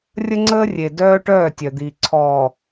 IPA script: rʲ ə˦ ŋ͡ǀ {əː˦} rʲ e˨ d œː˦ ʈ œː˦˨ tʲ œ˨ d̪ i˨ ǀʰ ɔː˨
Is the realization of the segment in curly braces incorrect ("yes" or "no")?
no